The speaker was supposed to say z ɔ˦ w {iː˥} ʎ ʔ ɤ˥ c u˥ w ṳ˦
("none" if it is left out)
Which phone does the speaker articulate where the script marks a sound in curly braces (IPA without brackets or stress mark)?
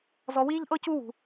iː˥